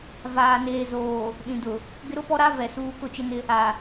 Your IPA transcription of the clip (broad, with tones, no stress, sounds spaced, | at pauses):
v aː˨ n eː˨ z oː˨ | ɗ ĩ˨ d ʊ˨ | ɡ ɪ˦ ɾ ʊ˦ p ɔ˦ ɾ a˦ v ɛ˨ s uː˦ k ʊ˦˨ t͡ʃ ɪ˦ n ɪ˦ | a˨